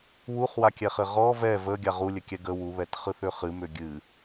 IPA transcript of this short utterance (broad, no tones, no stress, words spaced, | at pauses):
wuχwakʲɛχɘ ʁɔ vɛ vəɡʲa ʁulʲɘkʲɛ ɡə wuβɛtχɯθʏ χɨmʏ ɡʲɨ